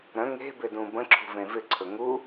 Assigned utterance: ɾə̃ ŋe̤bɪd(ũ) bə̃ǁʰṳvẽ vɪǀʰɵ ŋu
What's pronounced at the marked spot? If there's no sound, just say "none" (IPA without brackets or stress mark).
ũ